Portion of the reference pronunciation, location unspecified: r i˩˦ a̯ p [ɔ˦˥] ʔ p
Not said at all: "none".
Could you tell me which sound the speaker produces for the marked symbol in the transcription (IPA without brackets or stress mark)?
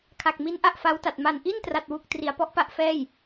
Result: ɔ˦˥